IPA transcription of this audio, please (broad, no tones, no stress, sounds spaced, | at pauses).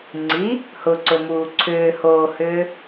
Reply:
ŋ͡ǀ i | h ʊ ǀ ʊ m uː ǀʰ ʏː h oː h ʏː